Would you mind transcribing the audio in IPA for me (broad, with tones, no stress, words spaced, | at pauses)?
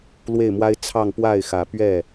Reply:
lwe˥˩ɪ̯mwa˥ɪ̯ t͡sʰɑ˥˧ŋ pwa˥˩ɪ̯xä˨˩pɥɛ˥˩